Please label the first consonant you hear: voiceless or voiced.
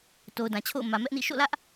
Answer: voiceless